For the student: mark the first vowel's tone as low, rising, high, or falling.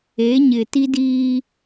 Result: rising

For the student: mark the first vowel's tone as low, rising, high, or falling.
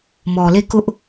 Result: low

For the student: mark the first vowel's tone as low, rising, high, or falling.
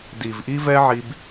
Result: low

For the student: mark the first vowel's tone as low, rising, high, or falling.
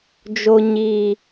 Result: low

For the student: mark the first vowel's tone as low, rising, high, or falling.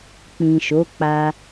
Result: low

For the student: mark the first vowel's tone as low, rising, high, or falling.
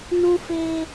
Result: high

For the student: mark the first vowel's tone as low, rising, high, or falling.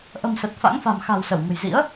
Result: low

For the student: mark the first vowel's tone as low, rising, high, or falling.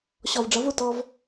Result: low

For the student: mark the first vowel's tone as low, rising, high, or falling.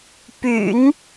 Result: low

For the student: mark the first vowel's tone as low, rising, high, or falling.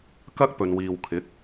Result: high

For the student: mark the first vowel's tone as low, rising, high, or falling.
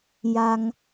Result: low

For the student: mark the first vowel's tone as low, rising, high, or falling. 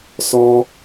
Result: high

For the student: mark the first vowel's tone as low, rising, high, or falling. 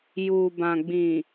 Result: low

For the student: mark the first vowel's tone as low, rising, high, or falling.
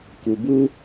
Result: low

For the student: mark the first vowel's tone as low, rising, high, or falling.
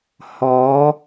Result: rising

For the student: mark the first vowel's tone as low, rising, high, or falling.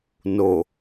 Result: low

